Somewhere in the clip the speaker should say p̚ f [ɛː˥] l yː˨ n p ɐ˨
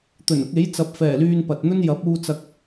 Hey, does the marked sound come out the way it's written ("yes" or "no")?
no